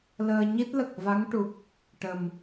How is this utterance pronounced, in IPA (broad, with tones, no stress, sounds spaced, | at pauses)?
l əː˧ ɲ i˦˥ t̚ l ə˨˩ k̚ v a˧˥ ŋ ʈ u˨˩ k̚ | ʈ ə˨˩ m